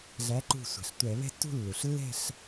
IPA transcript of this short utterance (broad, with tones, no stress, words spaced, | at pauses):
ɮæ˨˦ǃṳ˧˩ sʷɛ̤˩ɬtʷɛ˧˩˧βɛ̤˥˧tːṳ˥˧ lːu˩ɬlːɛ̤˥˧ɬ